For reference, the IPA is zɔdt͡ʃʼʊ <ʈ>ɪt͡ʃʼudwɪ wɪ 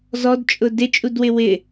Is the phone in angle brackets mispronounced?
yes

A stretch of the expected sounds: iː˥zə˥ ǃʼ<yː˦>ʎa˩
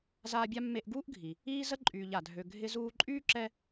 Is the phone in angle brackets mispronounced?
yes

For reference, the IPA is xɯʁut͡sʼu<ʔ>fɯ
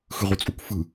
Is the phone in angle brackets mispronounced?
yes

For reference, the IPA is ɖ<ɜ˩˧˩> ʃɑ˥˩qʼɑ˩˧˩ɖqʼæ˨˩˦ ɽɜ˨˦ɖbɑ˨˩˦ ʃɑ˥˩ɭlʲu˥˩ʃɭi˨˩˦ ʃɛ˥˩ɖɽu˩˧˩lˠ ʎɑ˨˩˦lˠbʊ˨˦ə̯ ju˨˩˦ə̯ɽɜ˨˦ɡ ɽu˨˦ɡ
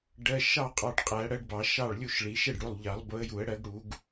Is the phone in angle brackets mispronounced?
no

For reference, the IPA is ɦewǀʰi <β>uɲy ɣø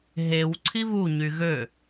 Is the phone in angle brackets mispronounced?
no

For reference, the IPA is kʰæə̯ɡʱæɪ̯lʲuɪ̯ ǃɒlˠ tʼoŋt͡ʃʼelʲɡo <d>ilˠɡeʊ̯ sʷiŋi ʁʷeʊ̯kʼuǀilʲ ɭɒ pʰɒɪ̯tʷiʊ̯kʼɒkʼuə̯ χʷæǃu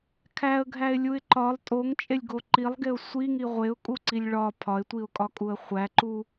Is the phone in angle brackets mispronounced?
yes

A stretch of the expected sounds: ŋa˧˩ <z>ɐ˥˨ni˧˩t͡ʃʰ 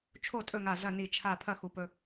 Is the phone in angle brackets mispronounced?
no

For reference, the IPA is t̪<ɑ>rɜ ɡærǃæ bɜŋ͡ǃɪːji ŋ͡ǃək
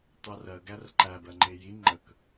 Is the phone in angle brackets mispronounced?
no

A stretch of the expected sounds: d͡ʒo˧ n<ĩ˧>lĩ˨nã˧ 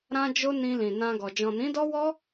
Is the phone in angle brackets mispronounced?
no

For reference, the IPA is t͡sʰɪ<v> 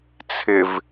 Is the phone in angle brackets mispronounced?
no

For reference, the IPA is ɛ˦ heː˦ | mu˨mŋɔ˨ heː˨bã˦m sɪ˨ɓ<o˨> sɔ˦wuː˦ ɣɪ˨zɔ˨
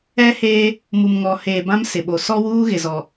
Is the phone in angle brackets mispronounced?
no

